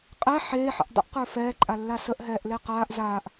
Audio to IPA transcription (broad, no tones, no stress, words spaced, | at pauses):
qʼɛ ħeːħə̰ʔ dˤə̰ʔqə˞ fɛːǃʼalːa səʔɦɛːʔle qaːʔ zaːʔ